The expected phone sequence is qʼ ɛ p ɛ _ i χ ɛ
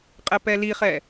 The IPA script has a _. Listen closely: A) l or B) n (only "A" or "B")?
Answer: A